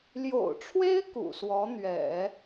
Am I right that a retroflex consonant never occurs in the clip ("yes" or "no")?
no